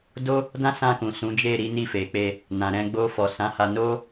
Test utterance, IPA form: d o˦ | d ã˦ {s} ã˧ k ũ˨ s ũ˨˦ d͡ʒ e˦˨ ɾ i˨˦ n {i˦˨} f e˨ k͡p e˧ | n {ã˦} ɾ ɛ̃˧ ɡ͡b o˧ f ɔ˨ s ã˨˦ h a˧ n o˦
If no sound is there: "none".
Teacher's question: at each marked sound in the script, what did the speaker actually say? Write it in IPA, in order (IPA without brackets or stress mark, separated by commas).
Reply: s, i˦˨, ã˨